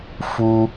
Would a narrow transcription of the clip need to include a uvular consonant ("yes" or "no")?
no